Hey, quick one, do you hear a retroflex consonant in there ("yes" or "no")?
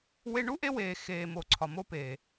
yes